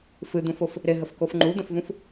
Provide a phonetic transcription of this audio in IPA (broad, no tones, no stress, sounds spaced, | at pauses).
f ɨ d̪ ũ f o f | ɾ ɪ ɦ ə f k o f ŋ͡ǃ u d̪ ə̃ f v ũ f